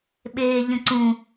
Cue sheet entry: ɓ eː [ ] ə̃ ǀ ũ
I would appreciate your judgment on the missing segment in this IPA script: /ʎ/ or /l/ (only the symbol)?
ʎ